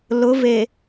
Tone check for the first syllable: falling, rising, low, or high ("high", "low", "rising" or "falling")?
rising